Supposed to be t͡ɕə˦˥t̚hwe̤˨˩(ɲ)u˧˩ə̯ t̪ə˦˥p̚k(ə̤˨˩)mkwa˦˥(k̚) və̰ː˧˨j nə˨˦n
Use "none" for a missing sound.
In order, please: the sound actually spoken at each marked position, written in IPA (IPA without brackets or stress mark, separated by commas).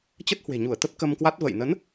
ɲ, ə˧, t̚